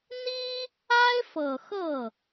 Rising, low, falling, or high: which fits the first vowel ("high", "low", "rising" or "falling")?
high